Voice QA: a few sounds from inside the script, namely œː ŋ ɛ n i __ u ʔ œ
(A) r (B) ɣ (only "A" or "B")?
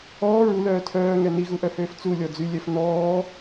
B